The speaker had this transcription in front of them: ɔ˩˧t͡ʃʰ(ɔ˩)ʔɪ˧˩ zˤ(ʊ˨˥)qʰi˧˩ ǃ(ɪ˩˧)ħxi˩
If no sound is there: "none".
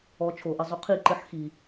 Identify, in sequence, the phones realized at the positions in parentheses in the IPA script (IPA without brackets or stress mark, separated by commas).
o˩, ʊ˨˥, ɪ˨˥